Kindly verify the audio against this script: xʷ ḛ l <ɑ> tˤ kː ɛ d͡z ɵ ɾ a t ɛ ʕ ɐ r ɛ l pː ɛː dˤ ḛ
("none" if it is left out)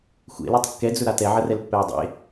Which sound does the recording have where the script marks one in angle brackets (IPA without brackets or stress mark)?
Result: ɑ